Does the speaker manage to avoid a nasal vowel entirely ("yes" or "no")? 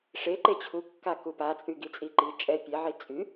yes